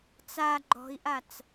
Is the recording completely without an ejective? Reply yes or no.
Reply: yes